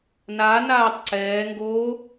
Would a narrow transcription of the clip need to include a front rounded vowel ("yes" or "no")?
no